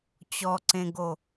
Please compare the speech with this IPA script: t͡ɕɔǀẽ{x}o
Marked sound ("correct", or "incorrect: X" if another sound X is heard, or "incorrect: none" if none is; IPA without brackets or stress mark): incorrect: ɡ